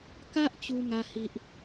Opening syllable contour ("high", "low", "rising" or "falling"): high